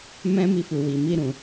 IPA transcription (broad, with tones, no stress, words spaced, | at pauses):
mɛ̃˦mi˧fu˨ wi˨ mi˧ ɾũ˨